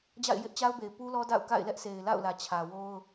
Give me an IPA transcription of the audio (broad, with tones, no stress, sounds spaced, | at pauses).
d͡ʑ a̰˦˨ ɪ̯ j ɪ˦ ʔ t͡ɕ a˦ ʊ̯ b e˨ ɪ̯ p u˦ l ɔ˦ d a̰˦˨ ʊ̯ k a̰˦˨ ɪ̯ l ɛ˦ ʔ sʰ e˨ ɪ̯ l a̰˦˨ ʊ̯ l ä˨ t͡ɕʰ ä˨ w o˦ ʊ̯